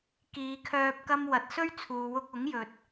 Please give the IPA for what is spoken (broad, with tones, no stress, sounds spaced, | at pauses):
k iː˨˧ kʰ œː˧ p̚ k ɐ˥ m w ɐ˨ t̚ s ɵ˥ ɥ t͡sʰ uː˨ w ʊ˧ k̚ ʊ˨˥ ŋ j ɵ˨ t̚